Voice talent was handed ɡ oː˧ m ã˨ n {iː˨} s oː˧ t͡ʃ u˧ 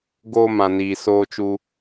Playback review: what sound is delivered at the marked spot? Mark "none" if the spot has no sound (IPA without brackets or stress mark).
iː˨